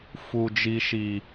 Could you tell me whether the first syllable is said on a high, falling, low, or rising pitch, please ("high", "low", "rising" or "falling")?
low